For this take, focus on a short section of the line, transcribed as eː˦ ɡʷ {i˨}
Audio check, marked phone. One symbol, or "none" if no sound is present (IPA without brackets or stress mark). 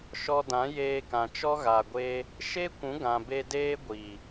i˨